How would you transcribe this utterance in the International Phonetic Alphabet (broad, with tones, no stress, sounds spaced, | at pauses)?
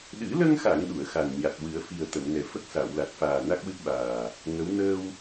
ɗ ɨ˨˩˦ l ə˧ ŋ x a˨˩˨ ŋ ɗ u˨˩˨ ə̯ x a˨˩ n ɲ a˨˩ t̚ w ɨ˨˩˦ ə̯ f i˨˩ ə̯ t̪ ə˨˩˨ m n ɛ˨˩ f ə˦˥ k̚ s a˨˩˨ w l a˨˩ t̚ f aː˨˩ n a˦˥ k̚ w ɨ˦˥ p̚ ɓ aː˨˩ | ŋ ə˧˥ w n əː˧ w